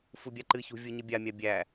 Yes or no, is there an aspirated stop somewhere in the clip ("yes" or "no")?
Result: no